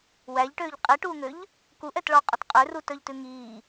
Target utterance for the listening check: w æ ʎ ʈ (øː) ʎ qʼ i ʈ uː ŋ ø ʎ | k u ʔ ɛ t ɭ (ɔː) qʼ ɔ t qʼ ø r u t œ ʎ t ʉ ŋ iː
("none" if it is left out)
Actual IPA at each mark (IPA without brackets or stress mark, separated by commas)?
øː, ɔː